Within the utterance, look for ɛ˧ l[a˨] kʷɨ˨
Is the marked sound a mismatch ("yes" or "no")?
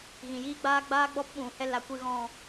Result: no